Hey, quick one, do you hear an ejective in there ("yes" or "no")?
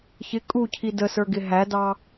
yes